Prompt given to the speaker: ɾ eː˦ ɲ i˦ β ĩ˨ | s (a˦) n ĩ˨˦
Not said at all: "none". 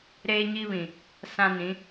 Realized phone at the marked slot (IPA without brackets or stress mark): ã˦